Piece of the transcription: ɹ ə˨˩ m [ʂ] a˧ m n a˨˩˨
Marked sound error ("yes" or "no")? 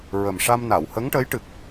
no